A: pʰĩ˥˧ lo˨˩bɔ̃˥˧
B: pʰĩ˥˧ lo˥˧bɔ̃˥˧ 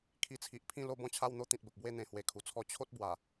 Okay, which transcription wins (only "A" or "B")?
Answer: B